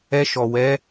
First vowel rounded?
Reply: no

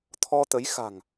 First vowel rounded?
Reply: yes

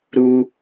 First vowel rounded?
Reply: yes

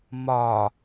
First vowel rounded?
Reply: yes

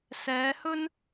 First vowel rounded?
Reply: no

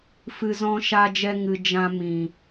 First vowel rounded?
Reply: no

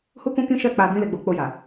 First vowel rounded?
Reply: yes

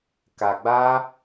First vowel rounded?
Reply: no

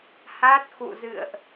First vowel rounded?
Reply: no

